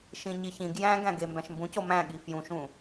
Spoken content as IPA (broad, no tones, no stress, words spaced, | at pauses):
ʃĩɲiçĩɡ jæ̃ɡæ̃ɡe mbæ̃ʃmbũco mæ̃ ɠifjũʃũ